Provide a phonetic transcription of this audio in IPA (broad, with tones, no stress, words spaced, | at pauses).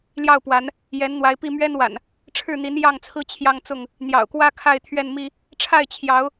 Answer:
ljɑ˥˨ʊ̯pwa˨˦n | jɛ˨˦nn̪wa˨˦ɪ̯pi˥˨ mɥɛ˦nwa̰˨˩n | ʈ͡ʂʰɻ̩˥˨n̪i˨˦n jɑ˥˨ŋt͡sʰɹ̩˦ t͡ɕʰjɑ˦ŋt͡sʊ˥˨ŋ | n̪jɑ̰˨˩ʊ̯kwä˦ kʰa˥˨ɪ̯t̪ʰɥɛ˥˨nmi˦ | ʈ͡ʂʰa˥˨ɪ̯t͡ɕʰjɑ˨˦ʊ̯